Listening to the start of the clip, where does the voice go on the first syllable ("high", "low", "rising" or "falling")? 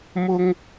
high